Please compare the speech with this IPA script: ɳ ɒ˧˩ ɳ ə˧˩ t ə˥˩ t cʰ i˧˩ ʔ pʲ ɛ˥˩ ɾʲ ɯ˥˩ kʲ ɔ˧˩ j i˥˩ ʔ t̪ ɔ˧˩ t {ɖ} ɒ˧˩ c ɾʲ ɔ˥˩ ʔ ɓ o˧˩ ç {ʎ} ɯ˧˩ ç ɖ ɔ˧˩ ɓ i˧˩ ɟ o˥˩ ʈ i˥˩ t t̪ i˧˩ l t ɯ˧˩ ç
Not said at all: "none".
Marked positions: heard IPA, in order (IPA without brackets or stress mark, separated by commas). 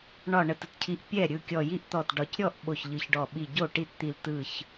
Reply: ɖ, ʎ